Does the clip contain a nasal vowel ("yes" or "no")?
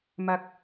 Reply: no